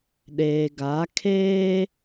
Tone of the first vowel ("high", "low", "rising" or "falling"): low